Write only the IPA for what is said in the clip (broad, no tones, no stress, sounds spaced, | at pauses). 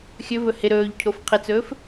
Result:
xʲ ɵ v ɵ h ɪ ɾ ɵː ʎ cʰ o f qʰ ɪ t͡s ɵː f